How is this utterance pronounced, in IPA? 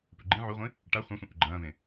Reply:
p ʉ ɡ͡ǃ ĩ ʕ u ʁʷ ĩ | ʈ a χʷ ã sʷ ĩ ʔ ʉ ɡ͡ǃ ɐ̃ː v ẽ

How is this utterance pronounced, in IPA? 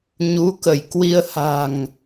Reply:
ɲ u˨˦ k ə˧˩ j k w i˧ ə̯ h a̤˨˩ ŋ

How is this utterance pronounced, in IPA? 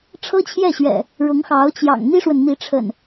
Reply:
ʈ͡ʂʰ ɤ˦ t͡ɕʰ j ɛ˥˨ ɕ ɥ ɛ̰˨˩ | ɻ ʊ˨˦ ŋ x ɑ˨˦ ʊ̯ t͡ɕ j ɑ̰˨˩ ŋ n̪ i˦ ʂ w ə˨ n n̪ i˨˦ ʈ͡ʂʰ ə̰˨˩ n

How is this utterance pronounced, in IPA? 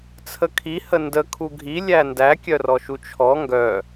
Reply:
t͡sʰ ə kʰ i h ə n d ə kʰ u ɡʱ i lʲ æ n d æ kʲ œ r ɔ ʃ u t͡ʃʰ ɔ ŋ ɡ œ

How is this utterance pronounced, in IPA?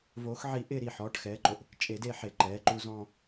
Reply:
v oː˨˦ x ʕ i˨˩˦ ʔ ɪː˦˨ ɾ iː˩ ħ ɔː˩˧˩ ʈ x ɛː˨˦ ǃ o˩ ʔ | t͡ʃʼ e˨˦ d e˦˨ ħ e˨˦ ǃ ɛː˩˧˩ ǃ u˦˨ z ɔ̃˦˨

